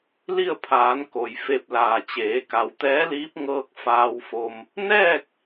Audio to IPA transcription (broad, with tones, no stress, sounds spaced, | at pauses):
l i˥˨ ə̯ pʰ aː˩˧ n k o˩ j f e˥˨ p̚ l aː˧˩ t͡ɕ eː˩˧ k a˩ w t̪ ɛː˧˥ l iː˧˥ p̚ ŋ ɤː˧ k̚ f aː˧ w f o˧ m | n ɛː˥˨ k̚